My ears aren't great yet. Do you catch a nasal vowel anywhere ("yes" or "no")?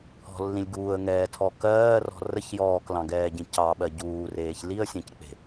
yes